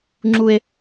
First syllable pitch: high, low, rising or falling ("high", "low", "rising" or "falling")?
high